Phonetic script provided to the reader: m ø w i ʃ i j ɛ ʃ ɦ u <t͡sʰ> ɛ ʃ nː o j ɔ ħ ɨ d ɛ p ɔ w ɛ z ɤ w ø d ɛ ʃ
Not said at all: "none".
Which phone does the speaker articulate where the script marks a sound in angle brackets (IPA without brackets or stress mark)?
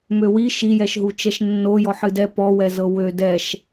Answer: t͡ʃ